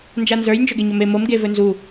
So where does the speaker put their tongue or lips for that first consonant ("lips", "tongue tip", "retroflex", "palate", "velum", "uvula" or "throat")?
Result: tongue tip